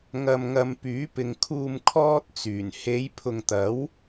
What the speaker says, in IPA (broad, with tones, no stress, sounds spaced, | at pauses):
ŋ ɐ˧ m ŋ ɐ˧ m p yː˨˥ p ɪ˨ ŋ kʰ uː˧ m kʰ ɔː˥ t̚ t͡s yː˨˩ n h e˨˧ j pʰ ʊ˨ ŋ t̪ ɐ˨˥ w